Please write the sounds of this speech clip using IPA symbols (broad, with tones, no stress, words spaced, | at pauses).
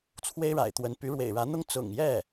t͡sʰwe˥ɪ̯ɻa̰˨˩ɪ̯t̪wə˧˥n py˧˥ɻwḛ˨˩ɪ̯ɻä˧˥n̪ʊ˥ŋ t͡sʊ̰˨˩ŋjɛ˥˩